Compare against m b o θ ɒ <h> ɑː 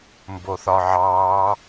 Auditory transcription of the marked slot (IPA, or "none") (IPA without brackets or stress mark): ʕ